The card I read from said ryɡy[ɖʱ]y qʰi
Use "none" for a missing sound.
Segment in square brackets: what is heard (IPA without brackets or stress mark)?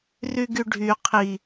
ɖʱ